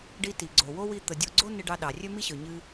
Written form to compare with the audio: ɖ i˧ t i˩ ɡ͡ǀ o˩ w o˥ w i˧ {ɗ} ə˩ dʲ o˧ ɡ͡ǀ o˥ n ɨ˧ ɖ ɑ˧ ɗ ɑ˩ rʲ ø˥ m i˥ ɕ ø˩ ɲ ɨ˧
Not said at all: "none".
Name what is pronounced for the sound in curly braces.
t̪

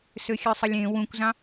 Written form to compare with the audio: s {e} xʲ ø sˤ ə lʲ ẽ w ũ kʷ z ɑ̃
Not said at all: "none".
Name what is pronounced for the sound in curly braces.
ø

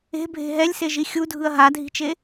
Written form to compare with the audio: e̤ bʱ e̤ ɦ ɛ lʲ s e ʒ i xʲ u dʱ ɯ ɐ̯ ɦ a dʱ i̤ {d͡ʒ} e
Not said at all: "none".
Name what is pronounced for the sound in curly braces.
t͡ʃ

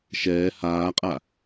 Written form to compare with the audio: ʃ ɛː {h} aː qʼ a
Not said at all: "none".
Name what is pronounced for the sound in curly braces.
h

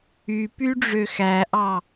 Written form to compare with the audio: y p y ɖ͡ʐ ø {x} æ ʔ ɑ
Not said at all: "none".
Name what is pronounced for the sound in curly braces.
x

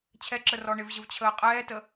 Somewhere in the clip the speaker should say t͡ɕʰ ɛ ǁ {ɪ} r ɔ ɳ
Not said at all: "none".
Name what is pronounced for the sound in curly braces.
ə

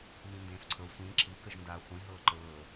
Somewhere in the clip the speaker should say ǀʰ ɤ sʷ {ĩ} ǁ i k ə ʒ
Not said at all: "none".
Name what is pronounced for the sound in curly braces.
ĩ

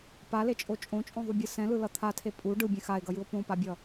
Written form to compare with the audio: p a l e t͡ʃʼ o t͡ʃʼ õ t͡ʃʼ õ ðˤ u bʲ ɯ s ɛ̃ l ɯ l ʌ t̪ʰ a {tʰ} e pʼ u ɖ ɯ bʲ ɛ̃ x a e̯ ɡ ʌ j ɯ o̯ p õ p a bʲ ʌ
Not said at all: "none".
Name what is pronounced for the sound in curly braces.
tʰ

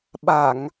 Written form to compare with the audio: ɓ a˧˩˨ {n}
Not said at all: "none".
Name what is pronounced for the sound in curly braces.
ŋ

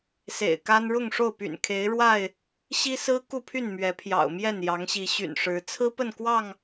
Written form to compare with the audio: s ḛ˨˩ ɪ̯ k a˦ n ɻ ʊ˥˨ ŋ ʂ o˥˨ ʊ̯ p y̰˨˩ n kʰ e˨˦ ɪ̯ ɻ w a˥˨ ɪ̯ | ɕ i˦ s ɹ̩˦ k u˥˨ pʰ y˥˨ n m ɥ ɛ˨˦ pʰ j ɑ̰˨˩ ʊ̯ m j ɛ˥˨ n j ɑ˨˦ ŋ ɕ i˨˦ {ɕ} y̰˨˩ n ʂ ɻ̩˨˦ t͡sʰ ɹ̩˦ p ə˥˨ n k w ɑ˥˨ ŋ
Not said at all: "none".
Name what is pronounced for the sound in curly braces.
ɕ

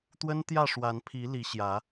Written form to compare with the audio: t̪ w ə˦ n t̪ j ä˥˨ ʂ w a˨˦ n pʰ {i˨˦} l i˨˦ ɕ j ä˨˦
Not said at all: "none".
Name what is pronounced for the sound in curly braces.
i˨˦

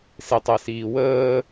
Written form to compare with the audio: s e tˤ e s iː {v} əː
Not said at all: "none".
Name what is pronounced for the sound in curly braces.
w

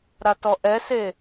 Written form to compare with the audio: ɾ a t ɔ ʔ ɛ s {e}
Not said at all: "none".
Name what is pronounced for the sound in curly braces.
e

